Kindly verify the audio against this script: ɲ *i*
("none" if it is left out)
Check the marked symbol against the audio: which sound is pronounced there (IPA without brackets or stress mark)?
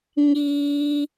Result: iː